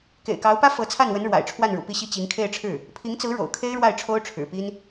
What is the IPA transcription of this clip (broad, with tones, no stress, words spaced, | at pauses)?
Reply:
kḛ˨˩ɪ̯kɑ˧˥ʊ̯pä˥ fɤ˧˥t͡sʰa˥˩nwə˧˥n ɻwa̰˨˩ɪ̯ʈ͡ʂʰwa˥˩nɻṵ˨˩ pi˥˩ɕi˥ t͡ɕi˧˥ŋkʰe˥˧ɪ̯ʈ͡ʂʰɻ̩˥˩ | pʰi˧˥ŋt͡sɹ̩˧˥ ɻo̰˨˩ʊ̯kʰe˥ɪ̯ɻwa˥˩ɪ̯ ʈ͡ʂʰo˥ʊ̯ʈ͡ʂʰɻ̩˨˩pi˥n